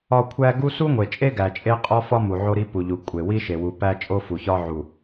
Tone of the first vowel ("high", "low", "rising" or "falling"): falling